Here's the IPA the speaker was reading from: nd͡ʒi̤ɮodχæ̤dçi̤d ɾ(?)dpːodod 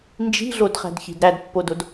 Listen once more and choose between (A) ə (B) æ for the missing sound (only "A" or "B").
B